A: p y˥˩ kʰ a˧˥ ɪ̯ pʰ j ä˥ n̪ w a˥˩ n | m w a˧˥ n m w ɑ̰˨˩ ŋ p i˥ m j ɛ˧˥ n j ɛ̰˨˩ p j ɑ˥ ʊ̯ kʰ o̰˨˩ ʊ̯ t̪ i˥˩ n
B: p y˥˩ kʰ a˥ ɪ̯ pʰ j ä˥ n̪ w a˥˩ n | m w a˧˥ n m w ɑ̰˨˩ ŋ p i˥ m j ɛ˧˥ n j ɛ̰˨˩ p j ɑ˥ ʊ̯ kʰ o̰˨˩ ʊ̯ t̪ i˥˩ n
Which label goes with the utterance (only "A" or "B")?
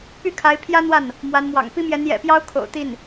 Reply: A